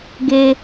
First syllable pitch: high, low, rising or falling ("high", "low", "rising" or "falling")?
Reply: high